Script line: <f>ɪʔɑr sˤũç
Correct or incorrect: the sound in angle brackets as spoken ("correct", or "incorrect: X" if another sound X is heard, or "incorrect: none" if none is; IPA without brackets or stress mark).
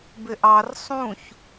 incorrect: b